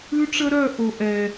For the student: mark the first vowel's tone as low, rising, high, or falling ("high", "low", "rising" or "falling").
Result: high